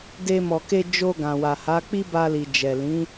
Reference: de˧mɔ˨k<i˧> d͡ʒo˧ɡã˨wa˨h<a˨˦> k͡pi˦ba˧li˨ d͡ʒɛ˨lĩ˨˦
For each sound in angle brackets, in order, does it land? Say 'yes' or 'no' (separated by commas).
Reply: no, yes